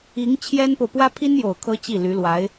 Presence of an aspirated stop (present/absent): present